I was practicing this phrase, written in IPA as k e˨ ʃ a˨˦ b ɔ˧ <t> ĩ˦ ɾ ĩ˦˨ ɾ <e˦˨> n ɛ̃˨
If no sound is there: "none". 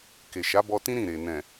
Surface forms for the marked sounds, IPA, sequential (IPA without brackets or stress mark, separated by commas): t, e˨